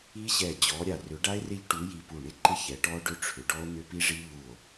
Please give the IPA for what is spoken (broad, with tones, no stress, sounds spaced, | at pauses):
i˦˥ ɕ ɛ˧˩ d͡ʑ ɔ˨˦ ɾʲ a˧˩ r ʏ˨˦ ɖ a˦˥ e̯ r ɪ˦˥ ʎ ʈ u˨˦ j i˧˩ p u˧˩ ɳ ɪ˦˥ ǃ ɪ˦˥ ç ɛ˨˦ ʈ ɔ˦˥ ɖ ʏ˦˥ ʈ͡ʂʰ ʏ˨˦ ɖ ɔ˦˥ o̯ n̪ ʏ˦˥ p i˦˥ ʐ i˦˥ ʎ u˧˩ o̯